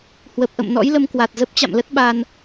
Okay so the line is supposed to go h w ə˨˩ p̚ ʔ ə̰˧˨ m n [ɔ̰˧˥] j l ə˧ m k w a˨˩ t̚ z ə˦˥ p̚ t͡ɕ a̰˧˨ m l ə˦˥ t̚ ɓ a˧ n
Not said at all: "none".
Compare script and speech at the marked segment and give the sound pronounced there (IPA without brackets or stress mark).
ɔ̰˧˥